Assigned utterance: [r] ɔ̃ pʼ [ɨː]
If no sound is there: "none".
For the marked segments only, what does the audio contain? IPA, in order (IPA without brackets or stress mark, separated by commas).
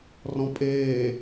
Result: r, eː